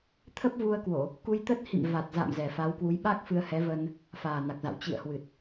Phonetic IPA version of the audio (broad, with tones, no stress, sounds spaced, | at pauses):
t̪ʰ ə˦˥ p̚ v u˧ ə̯ k w o˧˩˨ | k u˧ j t̪ ə˦˥ t̚ h ḭ˧˨ m v a˨˩ t̚ z a̰˧˨ m z ɛ˨˩ f a˨˦ w k w u˨˦ j ɓ a˦˥ k̚ f ɨ˧ ə̯ h ɛ˨˦ v ə˧ n | f aː˨˩ n a˨˩ k̚ z a̰˧˨ w t͡ɕ ḭ˧˨ ə̯ h w ɨ˨˩ t̚